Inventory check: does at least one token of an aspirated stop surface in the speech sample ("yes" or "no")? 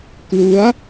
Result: no